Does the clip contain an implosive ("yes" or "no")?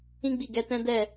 no